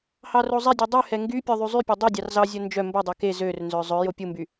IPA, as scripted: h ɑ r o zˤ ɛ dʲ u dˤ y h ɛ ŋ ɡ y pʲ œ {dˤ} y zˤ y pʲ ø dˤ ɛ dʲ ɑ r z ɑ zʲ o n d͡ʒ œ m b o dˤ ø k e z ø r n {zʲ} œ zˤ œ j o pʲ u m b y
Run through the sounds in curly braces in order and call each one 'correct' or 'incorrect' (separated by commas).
incorrect, incorrect